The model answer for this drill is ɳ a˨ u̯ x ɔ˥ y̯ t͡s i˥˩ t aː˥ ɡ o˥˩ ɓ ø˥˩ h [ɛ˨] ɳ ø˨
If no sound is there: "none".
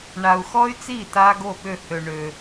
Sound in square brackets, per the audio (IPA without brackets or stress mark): ø˨